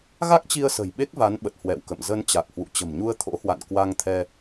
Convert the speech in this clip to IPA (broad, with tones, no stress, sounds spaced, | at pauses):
ɣ a˦˥ k̚ t͡ɕ i˧ ə̯ s ə̤˨˩ j ɓ e˦˥ k̚ v a˨˦ n ɓ ə˨˩ t̚ h w ɛ̰˧˨ w k ə̰˧˨ m z ə˧ n t͡ɕ a˨˩ k̚ h w ṵ˧˨ t͡ɕ ə̤˨˩ m ɲ u˧ ə̯ t̪ʰ o̰˧˥ h w a̰˧˨ n k w a˧ ŋ t̪ʰ ɛ˧